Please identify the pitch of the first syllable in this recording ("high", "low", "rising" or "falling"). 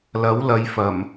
rising